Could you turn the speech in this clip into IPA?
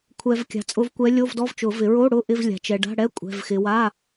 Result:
kʷʰ ɛ˨ v kʲ a̤˨ t͡sʼ ʊ˧˥ v kʷ ɛ˧˥ lʲ o˧˥˧ v d ɔ˧˥˧ v t͡ʃ ʊ˨˩˦ v ɪ˨˩˦ ɹ o˧˥˧ ɽ ʊ˧˥˧ ʔ ɪ˧˥˧ v lʲ a̤˨ t͡ʃ ɛ˨ ɖ a̤˧˥˧ ɽ ɛ˧˥˧ kʷʼ ɛ̤˧˥˧ v x ɪ˧˥ w a˧˥˧

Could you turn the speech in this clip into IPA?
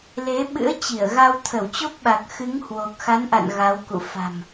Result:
l e˨˦ ɓ ɨ̰˧˥ ə̯ t͡ɕ i˧˩ ə̯ ɣ a˧ w t̪ʰ ə˧˩ w t͡ɕ o˦˥ p̚ ɓ a˨˩ k̚ x ɨ˨˦ ŋ h w o˨˩ k̚ x a˨˦ n ʔ a̰˧˨ n ɣ a˨˦ w k ṵ˧˨ f a̤˨˩ m

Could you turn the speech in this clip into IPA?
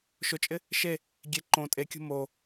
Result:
ʃ ʊ t͡ʃʼ ɪ | ʃ e | ɡʲ e ǃ õ tʼ e kʲ ṳ m o

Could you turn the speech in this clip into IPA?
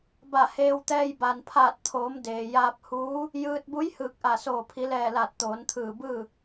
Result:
b a˧˩ h eː˧ w t̪ ɛː˧ j b a˩ n pʰ aː˧˩ t̚ t̪ʰ oː˩˧ m d eː˩ j aː˧ p̚ h uː˧˥ | j ɯː˧ t̚ b u˧˥ j h ɯː˧˩ k̚ ʔ a˧˩ s oː˧˩ pʰ i˩˧ l ɛː˧˩ l aː˧˩ t̚ t̪ oː˩˧ n t̪ʰ ɯː˧˩ b ɯː˥˨

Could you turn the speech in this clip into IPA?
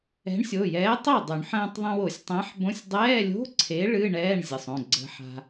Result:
ɛ̤˨˥ ɳ sʲ o˩˧˩ j ɛː˨˥ tˤ o˥˩ dˤ y˨˩˦ ɳ ħ ə̃ː˧ tˤ ðˤ ẽ˧ w o˨˩˦ sʲ tˤ ɛ̃˨˥ ħ b õ˧˥˧ sʲ dˤ ɛː˧˥˧ lʲ o̤˧˥˧ ǀʰ e˨˥ ɭ ɨ˧˥˧ ɳ ɛː˧˥˧ ɳ zʲ ə˩˧˩ sˤ õ˩˧˩ ɡ͡ǀ ə̤˧ ħ a̤˧

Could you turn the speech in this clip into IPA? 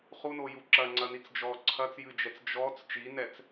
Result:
χ u n o j u ǁ ɐ ŋ͡ǀ ɐ n i t͡s d͡ʒ ɔ ǀʰ ɐ t͡s j ɨ d͡ʒ ɛ t͡s d͡ʒ ɔ t͡s t͡ʃ i n ɛ t͡s

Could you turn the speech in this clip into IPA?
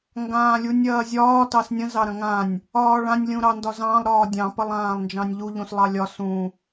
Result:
ŋ ɡ ãː lʲ u nʲ ɐː zʲ ɒː t ɑ s nʲ ə̃ z ɑ ɾ ɐ̃ ŋ ã nʲ | ɒː ɭ ã nʲ lʲ ũ ɾ ɑ n d ɒ z ɑ̃ lˠ ɾ ɒː dʲ ɑ̃ p ɐ lˠ ãː lˠ n d͡ʒ ɑ̃ nʲ ʎ u ʎ ũ s lˠ ɑ lʲ ɒ s ũ

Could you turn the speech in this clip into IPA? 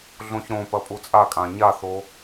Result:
ɮ õ ç ɾ õ p ɐ pʼ u t͡sʼ a kʼ ã ɲ a θ o

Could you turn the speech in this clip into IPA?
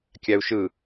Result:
kʲ æ u̯ ʃ ɯ

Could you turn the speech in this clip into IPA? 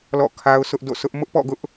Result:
l ɔ̰˦˨ kʰ a˦ ʊ̯ s ʊ˦ ʔ d o̰˦˨ sʰ ʊ˦ ʔ m ʊ˦ ʔ p ɔ̰˦˨ ɡ ʊ˦ ʔ

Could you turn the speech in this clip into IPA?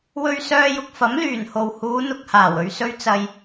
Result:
w ɵ˧ ɥ s œː˧ j ʊ˨ k̚ f ɐ˨˥ m l yː˨˩ n h o˨ w h uː˨˧ n̪ ʊ˨ k̚ h aː˨˩ w ɵ˨ ɥ s ɵ˧ ɥ t͡s ɐ˧ j

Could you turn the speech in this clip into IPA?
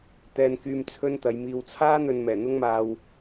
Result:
t̪ ɛː˧ n k yː˧ m t͡sʰ ɵ˥ n t̪ ɐ˨˧ j m iː˨ w t͡sʰ aː˥ n̪ ɵ˧ n m ɛː˨˩ n̪ ʊ˥ ŋ m aː˧ w

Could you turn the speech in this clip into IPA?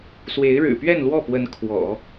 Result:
s w e˧˥ ɪ̯ ɻ ɻ̩˨˩ p ɥ ɛ˥˧ n l w ɔ˥˩ p w ə˧˥ n kʰ w ɔ̰˨˩˦

